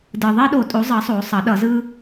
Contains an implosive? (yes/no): yes